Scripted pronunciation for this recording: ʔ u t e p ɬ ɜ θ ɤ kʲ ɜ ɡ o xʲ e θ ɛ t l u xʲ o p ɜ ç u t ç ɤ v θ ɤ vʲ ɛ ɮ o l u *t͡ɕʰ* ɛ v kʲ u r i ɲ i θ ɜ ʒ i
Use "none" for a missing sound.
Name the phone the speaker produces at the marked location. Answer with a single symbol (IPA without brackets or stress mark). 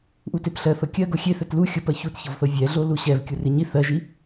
ɕ